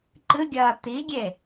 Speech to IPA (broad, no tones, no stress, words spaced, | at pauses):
ǃɨɡʲɐː t̪iɡʲe